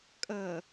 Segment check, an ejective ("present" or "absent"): present